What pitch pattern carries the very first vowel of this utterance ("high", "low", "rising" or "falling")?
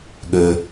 low